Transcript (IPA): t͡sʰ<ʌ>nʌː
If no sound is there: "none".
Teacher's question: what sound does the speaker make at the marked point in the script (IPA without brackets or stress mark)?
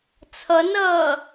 ʌ